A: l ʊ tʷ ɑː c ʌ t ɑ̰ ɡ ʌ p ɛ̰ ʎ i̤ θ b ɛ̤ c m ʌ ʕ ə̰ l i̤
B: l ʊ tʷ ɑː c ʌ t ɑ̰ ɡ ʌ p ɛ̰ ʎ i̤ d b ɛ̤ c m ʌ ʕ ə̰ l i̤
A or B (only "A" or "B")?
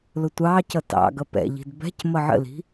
B